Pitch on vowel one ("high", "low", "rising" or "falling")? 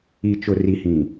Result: low